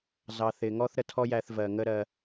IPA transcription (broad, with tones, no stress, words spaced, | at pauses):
zɑ˨θɪ˨ŋɔ˦θ ɾə˧tʰɔ˦jæ˧θ vɜ˨ŋə˦ ɾɜ˧